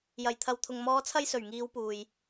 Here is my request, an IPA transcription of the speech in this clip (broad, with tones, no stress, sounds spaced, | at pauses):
j ɐ˨˩ j t̪ʰ ɐ˨ w t̪ʰ ʊ˨ ŋ m ɔː˨˧ t͡sʰ ɐ˧ j s ɵ˨˩ ɥ ŋ iː˨˧ w p uː˨ j